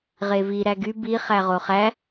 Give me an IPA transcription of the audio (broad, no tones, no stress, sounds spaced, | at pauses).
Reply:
ʁ e v i ɾ æ ɡ y b i χ æ ʁ o χ æ